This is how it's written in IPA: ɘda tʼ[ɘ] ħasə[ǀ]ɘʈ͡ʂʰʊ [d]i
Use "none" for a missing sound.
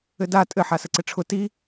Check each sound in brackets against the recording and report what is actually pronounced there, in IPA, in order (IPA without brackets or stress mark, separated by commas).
ɘ, ǀ, t